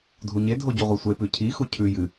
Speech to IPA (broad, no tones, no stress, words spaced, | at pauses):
dʱuɲedʱo ɟuʁʷesʷepʉ cʰixu cʰʉ jɨ